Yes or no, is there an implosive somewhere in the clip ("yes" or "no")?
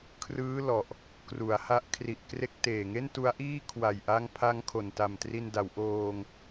no